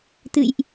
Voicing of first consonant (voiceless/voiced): voiceless